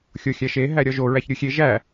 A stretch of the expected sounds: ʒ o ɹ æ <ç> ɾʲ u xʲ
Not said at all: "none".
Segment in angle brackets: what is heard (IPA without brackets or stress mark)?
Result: ç